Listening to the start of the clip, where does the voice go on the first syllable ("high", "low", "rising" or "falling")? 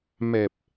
low